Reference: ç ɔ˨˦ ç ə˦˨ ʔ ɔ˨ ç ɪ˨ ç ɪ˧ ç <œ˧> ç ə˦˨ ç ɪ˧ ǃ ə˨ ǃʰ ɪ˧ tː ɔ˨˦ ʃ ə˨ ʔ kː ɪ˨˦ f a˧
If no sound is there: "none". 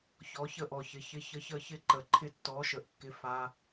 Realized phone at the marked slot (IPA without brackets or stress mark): ə˧